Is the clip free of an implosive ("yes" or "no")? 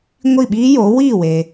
no